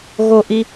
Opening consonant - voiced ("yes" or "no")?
yes